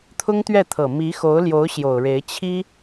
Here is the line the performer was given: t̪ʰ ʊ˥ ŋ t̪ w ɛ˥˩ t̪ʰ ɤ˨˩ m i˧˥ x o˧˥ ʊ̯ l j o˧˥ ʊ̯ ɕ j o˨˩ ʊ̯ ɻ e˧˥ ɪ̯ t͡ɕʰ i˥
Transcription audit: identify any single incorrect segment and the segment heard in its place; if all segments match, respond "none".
w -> ɥ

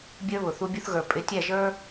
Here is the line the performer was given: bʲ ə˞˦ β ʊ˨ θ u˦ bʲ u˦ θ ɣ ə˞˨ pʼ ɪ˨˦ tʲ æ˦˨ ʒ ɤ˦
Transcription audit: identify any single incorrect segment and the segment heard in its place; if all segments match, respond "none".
ɤ˦ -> ə˞˦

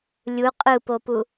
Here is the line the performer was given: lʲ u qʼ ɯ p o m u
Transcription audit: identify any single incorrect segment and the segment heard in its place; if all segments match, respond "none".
m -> p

